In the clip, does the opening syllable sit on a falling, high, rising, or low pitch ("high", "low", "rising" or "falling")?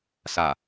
low